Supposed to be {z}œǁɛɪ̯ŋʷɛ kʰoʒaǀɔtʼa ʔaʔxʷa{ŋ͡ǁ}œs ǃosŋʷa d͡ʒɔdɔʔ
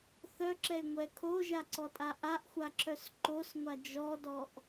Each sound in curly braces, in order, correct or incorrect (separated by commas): incorrect, incorrect